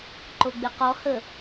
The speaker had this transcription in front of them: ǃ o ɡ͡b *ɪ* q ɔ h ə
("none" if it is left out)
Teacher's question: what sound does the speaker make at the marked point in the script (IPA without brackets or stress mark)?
ɪ